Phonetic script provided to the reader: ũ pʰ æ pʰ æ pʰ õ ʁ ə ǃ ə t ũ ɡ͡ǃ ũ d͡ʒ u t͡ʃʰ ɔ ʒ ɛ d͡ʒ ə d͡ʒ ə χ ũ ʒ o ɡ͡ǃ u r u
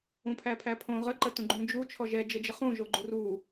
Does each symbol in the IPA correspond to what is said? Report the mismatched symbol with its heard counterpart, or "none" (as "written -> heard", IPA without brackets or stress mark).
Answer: none